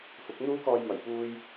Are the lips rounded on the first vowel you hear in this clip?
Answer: yes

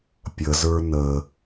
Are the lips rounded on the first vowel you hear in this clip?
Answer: no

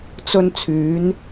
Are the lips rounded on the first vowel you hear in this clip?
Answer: yes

